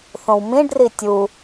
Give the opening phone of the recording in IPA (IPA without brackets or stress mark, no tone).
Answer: θ